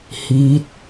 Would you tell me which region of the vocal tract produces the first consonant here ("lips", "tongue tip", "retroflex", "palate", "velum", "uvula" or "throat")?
throat